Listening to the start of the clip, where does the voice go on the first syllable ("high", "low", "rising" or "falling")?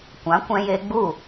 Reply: rising